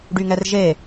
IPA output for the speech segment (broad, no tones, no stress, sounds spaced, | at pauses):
ɖ y ŋ ɛ r ʒ e